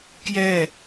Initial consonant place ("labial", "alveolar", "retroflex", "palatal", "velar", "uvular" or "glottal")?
velar